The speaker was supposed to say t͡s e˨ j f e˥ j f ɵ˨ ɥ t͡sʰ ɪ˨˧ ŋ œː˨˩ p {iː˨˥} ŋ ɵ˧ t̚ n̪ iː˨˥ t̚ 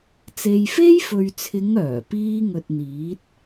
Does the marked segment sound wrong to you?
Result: yes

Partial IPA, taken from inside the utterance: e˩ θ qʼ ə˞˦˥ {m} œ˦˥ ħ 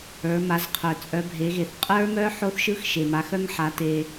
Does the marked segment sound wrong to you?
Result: no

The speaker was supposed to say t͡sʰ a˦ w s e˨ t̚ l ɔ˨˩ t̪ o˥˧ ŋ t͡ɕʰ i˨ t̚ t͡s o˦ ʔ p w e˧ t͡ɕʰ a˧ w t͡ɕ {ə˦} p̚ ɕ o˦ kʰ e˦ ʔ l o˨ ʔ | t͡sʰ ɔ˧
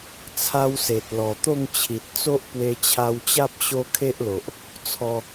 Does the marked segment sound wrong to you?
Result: yes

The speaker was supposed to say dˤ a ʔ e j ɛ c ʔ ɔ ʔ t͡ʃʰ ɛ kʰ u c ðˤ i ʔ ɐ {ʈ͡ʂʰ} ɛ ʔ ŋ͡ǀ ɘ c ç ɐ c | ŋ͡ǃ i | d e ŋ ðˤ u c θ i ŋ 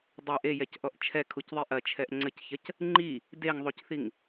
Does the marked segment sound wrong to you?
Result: yes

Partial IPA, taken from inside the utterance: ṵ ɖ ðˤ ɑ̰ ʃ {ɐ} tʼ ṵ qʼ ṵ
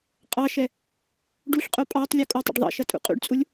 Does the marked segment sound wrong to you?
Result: no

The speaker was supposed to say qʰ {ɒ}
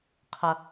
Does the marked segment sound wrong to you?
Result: yes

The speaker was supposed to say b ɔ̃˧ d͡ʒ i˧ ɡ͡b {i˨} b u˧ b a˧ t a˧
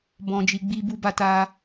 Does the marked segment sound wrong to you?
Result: yes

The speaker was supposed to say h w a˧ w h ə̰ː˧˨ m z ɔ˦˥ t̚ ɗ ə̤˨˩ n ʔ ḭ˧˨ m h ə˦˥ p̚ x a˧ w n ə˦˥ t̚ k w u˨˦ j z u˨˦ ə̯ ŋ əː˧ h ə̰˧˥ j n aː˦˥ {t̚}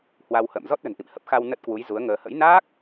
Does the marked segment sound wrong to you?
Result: yes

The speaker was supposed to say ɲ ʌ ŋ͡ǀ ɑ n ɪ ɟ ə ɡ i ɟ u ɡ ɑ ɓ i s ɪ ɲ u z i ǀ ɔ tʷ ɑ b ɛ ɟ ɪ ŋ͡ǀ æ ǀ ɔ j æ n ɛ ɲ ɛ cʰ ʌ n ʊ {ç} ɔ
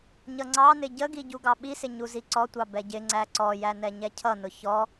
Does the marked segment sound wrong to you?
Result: no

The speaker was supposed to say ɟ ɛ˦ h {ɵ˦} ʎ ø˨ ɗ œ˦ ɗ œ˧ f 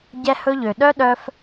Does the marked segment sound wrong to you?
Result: no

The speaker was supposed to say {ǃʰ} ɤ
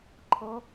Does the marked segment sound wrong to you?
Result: no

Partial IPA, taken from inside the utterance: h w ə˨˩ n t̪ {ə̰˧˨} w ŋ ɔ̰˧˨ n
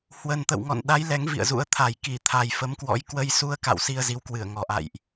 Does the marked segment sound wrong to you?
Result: no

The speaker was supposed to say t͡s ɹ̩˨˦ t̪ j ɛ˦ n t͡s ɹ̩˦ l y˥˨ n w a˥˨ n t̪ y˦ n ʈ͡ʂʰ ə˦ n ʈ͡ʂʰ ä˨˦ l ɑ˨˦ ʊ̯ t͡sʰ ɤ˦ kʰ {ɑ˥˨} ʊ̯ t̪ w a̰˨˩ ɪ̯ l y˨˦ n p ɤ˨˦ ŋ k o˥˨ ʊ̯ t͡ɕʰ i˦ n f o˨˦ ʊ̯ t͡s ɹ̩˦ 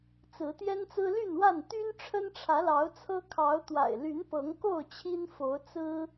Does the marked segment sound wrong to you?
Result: yes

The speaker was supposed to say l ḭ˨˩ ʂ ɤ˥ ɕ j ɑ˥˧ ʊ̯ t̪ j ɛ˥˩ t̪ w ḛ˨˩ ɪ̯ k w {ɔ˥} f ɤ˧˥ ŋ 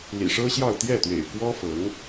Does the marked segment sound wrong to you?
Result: no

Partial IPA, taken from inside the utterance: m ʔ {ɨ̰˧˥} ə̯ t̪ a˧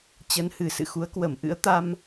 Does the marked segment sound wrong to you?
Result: no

